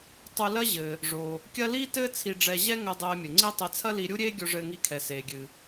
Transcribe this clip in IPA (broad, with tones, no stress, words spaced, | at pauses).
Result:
tˤu˧lɐ˥ ʑɘ˩ | ʐo˩ | kʲɐ˥ liː˥tɘː˥ t͡sʰi˧ɖ͡ʐɛ˧ ʑɛ˥ŋɘ˧ dˤeː˧mʲɘ˩ŋ͡ǀi˥ tˤe˧t͡sʰɐ˥ li˧ɾʲu˥ɾʲeː˥ ɡʲo˧ʐɘː˧ŋi˧kʰɛ˩ seː˩ɡʲɨ˩